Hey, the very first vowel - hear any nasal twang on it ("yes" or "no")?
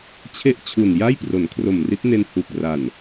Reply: no